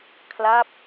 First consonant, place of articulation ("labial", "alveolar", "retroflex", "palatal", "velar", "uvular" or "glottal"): velar